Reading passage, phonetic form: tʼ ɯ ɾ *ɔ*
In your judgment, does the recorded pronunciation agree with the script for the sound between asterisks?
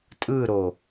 no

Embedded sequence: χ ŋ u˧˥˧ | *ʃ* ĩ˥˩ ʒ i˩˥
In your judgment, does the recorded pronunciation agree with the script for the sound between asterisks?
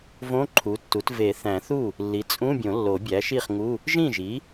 no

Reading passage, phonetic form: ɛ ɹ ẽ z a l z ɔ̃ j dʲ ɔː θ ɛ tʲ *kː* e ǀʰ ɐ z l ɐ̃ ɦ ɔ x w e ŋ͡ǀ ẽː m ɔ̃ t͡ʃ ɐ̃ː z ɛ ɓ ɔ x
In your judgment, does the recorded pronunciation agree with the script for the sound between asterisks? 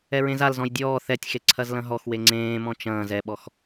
no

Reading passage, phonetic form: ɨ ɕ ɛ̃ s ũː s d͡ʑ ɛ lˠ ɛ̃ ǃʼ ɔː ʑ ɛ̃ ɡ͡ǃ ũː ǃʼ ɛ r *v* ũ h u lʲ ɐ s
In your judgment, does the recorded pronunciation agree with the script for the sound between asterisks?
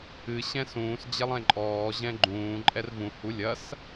yes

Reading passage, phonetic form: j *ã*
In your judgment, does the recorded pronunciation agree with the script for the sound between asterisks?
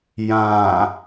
yes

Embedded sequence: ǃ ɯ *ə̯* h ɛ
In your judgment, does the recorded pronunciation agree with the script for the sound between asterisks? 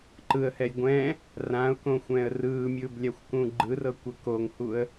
yes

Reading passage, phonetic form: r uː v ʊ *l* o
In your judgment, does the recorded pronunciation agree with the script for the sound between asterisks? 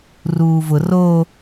no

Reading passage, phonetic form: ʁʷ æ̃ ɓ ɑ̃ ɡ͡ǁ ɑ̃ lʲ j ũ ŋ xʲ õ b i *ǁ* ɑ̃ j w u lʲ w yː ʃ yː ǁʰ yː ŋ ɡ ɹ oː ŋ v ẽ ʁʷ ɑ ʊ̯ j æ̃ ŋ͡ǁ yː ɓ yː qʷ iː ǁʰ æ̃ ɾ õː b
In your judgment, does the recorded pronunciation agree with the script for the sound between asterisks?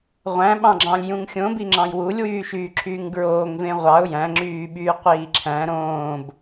no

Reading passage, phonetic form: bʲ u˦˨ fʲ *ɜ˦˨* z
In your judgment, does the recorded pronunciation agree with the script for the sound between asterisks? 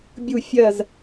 yes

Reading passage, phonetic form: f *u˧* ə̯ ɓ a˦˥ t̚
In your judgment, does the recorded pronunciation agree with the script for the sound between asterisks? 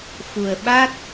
no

